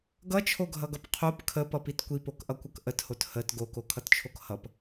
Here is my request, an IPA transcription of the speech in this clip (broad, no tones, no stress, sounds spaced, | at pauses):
ɡ ʌ t͡ʃʰ o ɡʱ ʌ ɡ ʌ p qʰ o p kʰ ə p ʌ p i t kʷ i p o k ʔ ʌ kʷ ʌ k ʔ ə t h o t h ə t ɡ o k o kʰ ʌ t t͡ʃʰ o k h ʌ p